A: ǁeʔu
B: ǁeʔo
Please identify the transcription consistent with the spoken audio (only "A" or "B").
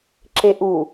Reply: A